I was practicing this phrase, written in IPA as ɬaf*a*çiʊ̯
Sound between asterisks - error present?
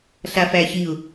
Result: yes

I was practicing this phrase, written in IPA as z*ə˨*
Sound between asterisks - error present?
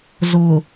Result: yes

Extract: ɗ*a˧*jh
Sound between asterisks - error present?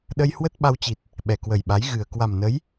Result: yes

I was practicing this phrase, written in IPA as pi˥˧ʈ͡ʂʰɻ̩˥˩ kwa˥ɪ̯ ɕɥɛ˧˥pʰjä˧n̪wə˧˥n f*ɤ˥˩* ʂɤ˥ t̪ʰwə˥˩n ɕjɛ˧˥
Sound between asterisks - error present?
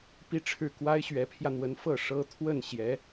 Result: no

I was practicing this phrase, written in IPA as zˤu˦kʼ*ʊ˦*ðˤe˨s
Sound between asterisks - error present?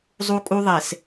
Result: yes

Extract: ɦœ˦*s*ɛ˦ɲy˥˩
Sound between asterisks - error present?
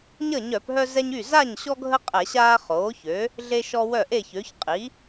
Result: yes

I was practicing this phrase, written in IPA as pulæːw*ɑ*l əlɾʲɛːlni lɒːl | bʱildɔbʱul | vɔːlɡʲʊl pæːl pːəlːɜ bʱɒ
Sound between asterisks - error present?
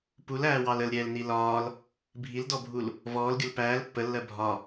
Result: no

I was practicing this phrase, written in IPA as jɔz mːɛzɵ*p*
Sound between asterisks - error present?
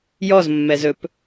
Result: no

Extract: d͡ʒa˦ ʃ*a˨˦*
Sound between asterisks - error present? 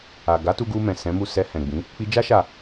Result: yes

